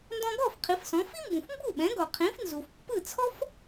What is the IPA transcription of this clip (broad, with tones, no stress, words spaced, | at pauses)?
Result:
ndɔ̃˧ɡɔ˥˩f qʰi˩˥fsɔ̃˩˥ fi˥mbũ˩f mbu˥˩ɓɛ̃˩˥ɡɔ˩ qʰĩ˩˥fnzu˩fpːɯ˥˩ t͡sʰɔ˥f